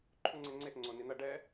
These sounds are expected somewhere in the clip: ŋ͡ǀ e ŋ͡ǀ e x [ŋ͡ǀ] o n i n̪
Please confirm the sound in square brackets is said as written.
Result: yes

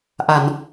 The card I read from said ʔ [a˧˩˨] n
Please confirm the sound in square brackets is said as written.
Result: yes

